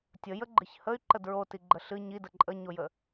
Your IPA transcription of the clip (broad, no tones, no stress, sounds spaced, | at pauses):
tʲ ə j ə ɡ͡ǃ ɨ ç h ə y̯ ǃ ə d ɹ o t i ɡ͡ǃ ə ɬ ɨ ɲ i d ə ǃʼ ə ɲ o j ə